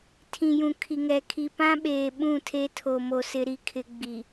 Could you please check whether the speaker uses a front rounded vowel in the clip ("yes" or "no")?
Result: no